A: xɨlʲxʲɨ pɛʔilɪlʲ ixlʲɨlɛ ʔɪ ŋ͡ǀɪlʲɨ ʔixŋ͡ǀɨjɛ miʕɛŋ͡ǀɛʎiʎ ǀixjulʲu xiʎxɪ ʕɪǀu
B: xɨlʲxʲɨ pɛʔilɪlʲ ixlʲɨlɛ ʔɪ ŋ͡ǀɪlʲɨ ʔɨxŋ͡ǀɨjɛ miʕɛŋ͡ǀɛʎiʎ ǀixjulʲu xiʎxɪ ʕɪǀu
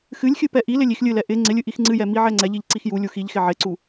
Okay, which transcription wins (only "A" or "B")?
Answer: A